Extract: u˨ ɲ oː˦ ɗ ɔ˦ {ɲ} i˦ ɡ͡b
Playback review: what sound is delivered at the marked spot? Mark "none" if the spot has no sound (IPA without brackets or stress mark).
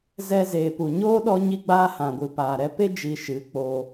ɲ